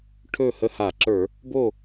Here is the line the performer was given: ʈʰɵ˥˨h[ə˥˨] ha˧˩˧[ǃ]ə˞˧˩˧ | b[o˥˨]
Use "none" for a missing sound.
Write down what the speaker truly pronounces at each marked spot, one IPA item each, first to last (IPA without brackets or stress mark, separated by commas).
ə˥˨, ǁ, o˥˨